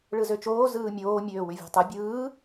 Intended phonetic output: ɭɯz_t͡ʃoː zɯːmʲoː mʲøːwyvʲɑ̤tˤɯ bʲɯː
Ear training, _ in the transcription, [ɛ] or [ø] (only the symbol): ø